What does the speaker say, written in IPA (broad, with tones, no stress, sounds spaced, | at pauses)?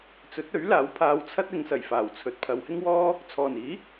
t͡s ɵ˨˥ t̚ ɵ˨˥ ɥ l aː˨˥ w pʰ aː˨˧ w t͡sʰ ɐ˥ t̚ ɪ˨˧ ŋ s ɐ˨˩ j f aː˨˩ w t͡sʰ ɵ˨ t̚ pʰ ɐ˨˧ w h ɪ˥ ŋ w ɔː˥ | t͡sʰ ɔː˨˩ n iː˨˥